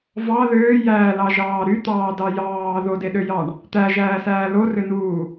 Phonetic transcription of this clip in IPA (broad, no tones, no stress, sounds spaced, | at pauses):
v ɑ ð øː j æː l ɑ ʒ ɑː ɾ y t̪ ɑː d ɑ j ɑː ð o d e ɗ ø j ɑ ɳ | t̪ æ ʒ æː s æː l o r ø n uː